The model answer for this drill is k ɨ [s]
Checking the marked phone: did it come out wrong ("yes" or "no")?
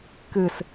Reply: no